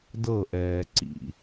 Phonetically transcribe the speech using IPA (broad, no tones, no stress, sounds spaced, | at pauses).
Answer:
d ɤ ʔ ɛː ǀ ḭ